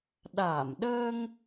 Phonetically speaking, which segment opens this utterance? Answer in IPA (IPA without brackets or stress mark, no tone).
ɗ